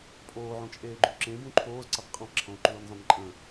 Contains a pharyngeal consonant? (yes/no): yes